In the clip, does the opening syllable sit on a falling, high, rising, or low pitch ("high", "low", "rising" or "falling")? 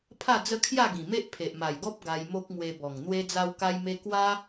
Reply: falling